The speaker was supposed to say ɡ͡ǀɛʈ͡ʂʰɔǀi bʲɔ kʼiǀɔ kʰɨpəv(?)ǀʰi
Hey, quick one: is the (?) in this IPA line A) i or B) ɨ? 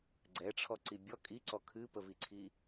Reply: A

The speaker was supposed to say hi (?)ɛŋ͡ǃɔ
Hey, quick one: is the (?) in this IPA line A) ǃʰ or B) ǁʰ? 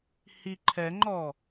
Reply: A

